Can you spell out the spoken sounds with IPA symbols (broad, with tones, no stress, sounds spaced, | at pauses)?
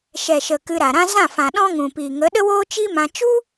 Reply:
ʃ ɛ˨ ʃ ə˨ k ɨ˧ ɾ a˨ ɾ ã˦ z ã˦˨ f ã˨ ɗ ɔ̃˦ ŋ ũ˨ p iː˨ ŋ ə˨˦ ɗ ə˦ w oː˦ t͡ʃ i˦ m ã˧ t͡ʃ u˦